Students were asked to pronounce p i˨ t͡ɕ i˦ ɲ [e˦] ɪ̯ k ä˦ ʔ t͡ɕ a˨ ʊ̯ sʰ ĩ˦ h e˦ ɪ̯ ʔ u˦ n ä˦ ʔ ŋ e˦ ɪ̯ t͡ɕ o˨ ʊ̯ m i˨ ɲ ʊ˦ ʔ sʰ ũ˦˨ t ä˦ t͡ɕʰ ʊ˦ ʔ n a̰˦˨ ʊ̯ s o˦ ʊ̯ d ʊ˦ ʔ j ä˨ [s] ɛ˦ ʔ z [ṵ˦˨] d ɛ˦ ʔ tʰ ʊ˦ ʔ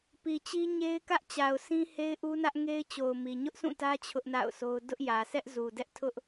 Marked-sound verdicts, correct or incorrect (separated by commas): correct, correct, incorrect